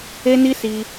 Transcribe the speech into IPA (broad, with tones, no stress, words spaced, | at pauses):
e˦ni˦ si˧